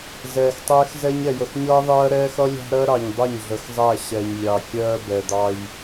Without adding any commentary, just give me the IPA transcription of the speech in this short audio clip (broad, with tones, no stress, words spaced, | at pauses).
zɛː˨xtˤɛː˦xzɛ˦ɲ ɛ˨jə˨xɲʌː˦ðˤɜː˦ ɾɛː˦xʌ˦ lʲɑ̤˦ɾɜ˦ɾɑ˨ɲ dˤʌ˦˨ɲɮə˨xzˤæ˦˨ ɕɛ˨ɲlʲɑ˨ kʲɜː˦bɛ˨d̪ɑ˦j